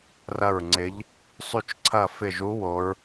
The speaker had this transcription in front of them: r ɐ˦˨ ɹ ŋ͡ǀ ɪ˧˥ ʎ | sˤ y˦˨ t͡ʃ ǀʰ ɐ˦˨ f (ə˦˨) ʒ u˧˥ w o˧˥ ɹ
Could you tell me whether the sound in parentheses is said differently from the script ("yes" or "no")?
yes